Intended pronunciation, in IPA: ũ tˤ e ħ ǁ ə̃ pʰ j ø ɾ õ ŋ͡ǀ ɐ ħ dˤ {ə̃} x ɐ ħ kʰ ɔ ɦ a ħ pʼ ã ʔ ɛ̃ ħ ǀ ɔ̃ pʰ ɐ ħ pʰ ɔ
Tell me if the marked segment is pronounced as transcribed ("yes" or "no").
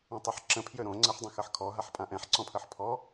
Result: yes